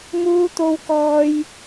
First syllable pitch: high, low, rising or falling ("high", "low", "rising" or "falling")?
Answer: high